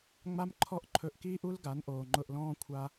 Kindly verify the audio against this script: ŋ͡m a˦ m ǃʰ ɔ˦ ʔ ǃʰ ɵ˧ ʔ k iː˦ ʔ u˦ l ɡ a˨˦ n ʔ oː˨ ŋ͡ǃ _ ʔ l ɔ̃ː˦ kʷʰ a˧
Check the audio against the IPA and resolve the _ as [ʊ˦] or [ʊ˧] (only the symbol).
ʊ˧